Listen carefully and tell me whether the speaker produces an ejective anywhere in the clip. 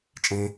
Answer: yes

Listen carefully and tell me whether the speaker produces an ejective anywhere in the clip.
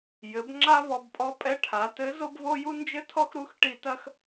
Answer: yes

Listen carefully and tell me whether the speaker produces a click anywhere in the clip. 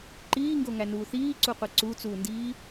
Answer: yes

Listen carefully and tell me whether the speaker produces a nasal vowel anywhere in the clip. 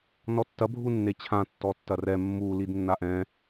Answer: yes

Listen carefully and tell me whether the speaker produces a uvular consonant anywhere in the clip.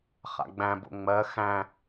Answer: yes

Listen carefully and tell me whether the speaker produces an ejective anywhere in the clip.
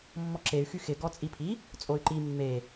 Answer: yes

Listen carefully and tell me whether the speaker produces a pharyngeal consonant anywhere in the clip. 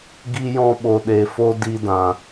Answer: no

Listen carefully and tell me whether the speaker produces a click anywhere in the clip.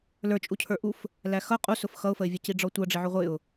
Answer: no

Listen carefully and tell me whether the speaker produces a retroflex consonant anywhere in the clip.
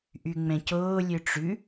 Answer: yes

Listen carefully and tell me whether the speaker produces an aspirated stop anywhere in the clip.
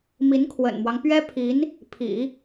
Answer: yes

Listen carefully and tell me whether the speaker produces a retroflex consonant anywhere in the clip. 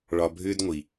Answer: yes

